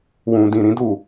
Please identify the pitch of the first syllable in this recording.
low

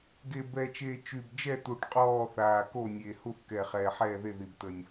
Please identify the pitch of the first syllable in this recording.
low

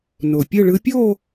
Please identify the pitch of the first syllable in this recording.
low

